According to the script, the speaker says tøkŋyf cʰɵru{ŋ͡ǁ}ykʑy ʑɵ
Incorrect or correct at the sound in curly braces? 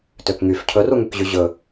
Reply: incorrect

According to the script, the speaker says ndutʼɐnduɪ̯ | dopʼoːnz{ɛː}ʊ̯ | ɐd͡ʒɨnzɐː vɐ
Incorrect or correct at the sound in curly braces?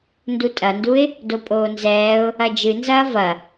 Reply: correct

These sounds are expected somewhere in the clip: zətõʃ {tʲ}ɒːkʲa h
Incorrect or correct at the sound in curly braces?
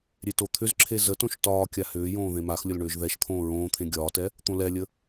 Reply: incorrect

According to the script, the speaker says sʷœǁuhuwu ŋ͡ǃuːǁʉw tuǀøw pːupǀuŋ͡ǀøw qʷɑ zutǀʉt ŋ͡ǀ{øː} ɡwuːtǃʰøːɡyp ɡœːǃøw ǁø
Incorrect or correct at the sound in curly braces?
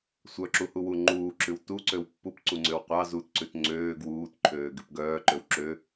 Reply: correct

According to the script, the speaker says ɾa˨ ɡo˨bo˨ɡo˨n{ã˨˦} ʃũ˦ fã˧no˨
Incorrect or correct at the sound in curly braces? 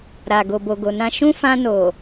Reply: incorrect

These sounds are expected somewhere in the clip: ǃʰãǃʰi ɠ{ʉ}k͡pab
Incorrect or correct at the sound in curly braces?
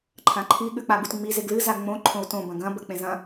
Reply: correct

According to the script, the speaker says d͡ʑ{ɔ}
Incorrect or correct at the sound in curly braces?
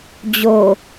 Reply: incorrect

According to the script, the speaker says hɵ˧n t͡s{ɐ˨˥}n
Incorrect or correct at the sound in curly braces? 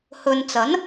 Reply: correct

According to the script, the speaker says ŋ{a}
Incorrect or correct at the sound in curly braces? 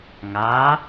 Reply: correct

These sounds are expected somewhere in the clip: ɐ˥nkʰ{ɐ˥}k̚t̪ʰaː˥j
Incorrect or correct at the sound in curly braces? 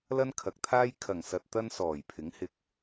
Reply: incorrect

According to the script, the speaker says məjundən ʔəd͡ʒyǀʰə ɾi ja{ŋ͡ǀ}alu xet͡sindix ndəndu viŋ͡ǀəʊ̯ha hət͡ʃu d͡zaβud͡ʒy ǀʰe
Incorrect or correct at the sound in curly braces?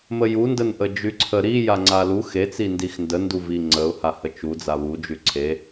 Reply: correct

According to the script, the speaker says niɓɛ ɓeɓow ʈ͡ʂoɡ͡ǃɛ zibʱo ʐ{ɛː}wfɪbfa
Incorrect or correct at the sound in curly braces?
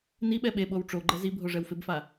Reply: incorrect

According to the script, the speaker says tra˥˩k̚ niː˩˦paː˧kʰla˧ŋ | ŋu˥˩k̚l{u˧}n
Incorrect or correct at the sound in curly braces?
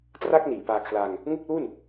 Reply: incorrect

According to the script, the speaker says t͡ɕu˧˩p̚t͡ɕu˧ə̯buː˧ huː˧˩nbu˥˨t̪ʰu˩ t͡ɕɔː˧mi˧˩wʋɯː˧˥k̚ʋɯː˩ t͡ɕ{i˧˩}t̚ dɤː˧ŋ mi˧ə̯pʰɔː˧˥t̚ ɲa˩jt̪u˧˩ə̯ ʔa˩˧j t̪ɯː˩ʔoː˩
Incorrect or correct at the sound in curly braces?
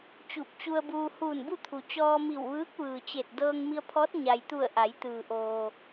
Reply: incorrect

